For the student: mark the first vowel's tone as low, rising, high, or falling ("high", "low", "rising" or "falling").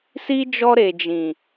high